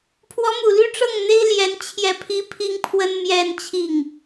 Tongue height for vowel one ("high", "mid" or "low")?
mid